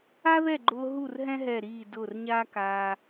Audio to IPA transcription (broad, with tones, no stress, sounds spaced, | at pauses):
a˥ ð ɛ˥˨ ɡ͡ǃ ʊː˧ ɦ u˥˨ r ɦ ɛ̃˥ ɦ ɛ˧˩ ɾ iː˧˩ d ʊː˧˩ r ɲ aː˥ k aː˧